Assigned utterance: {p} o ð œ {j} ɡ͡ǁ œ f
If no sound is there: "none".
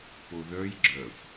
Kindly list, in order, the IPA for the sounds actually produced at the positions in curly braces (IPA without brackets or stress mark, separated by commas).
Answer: p, j